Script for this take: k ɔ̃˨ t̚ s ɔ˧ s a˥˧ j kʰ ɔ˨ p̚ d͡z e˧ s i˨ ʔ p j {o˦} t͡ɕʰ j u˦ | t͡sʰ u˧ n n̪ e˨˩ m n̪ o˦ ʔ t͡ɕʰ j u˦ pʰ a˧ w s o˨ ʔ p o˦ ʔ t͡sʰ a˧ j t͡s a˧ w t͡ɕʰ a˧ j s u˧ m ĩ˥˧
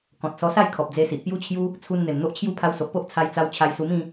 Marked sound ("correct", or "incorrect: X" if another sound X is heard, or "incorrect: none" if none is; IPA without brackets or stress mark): incorrect: u˦